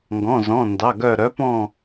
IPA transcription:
ŋɡɔ̃˧˥˧zɔ̃˧˥˧ndɑ˧˥˧ɡœ˥˧ ɾœ˧˥pɔ̃˥˧

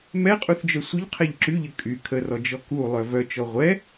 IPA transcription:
mɛqʼuθd͡ʒœ sʷəʎqʰɛʎ ǁyʎə kʼy kʰərɔd͡ʒɔ kulˠœ vœt͡ʃɔ ʁʷɛ

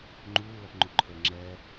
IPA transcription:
ŋ͡ǃuːlʌpŋ͡ǃuǃʰə˞ ŋ͡ǁɛ

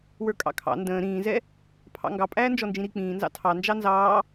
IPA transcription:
wə˞kʼɑ̰kʰɑ̰ ndə̃ː ɾĩːzɛ | pʰɑ̰ŋɡɑ pʼæːnd͡ʒɔnd͡ʒĩɾi k͡pĩːnzɑ̰ tʰɑ nd͡ʒɑnzɑː

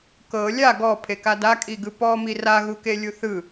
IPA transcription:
kɤ lʲa ɡɔpʰeka dakʼiɡɯ pɔmi raɣukelʲu θɯ

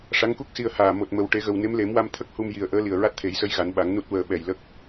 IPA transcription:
ʂa˧˥ŋku˦˥k̚si˧ə̯ haː˨˩ mo˨˩t̚mə˨˩w ʈe˨˩˦ɣə˨˩wne˧˥m le˨˩˦mwa˧m t̪ʰə˦˥k̚hu˧m ji˨˩ə̯ʔəː˧˥ li˨˩ə̯ɹa˦˥t̚t̪ʰe˨˩˦jsə˧˥j ɣa˨˩˦nɓa˨˩˦ŋ nu˦˥t̚wəː˧ ɓɛ˨˩jlə˦˥k̚

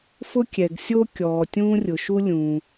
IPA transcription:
fʊ˥kʲɛ˩ɡsʲo˥kʲɔː˩ tʲũː˥rʲʊ˩ ʃu˥ lʲũː˩

